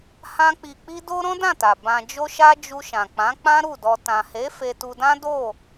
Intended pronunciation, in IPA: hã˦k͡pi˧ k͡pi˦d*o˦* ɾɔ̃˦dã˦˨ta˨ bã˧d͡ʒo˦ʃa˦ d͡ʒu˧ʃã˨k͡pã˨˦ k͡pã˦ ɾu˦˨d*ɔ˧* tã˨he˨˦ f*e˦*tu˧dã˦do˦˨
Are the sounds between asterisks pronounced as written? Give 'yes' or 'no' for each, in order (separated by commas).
yes, yes, no